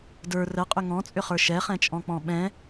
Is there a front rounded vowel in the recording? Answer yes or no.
yes